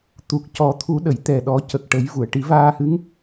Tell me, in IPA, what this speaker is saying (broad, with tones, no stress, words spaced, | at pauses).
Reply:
t̪u˨˩k̚cɔ˨˩˦t̪ʰu˨˩˦ɗə˨˩˨j t̪ɛ˨˩ ɗɔ˨˩˦cə˨˩k̚ ʈə˨˩˦jvu˨˩˨ə̯ʈi˨˩˦ vaː˧hɨ˧˥ŋ